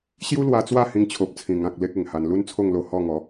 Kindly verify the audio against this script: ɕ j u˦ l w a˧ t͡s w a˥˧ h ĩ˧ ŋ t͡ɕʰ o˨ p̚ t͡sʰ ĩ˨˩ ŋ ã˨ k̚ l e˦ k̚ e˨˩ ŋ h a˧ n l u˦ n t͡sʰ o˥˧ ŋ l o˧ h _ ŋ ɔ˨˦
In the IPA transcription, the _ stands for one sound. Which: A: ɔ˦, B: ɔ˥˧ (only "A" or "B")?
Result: B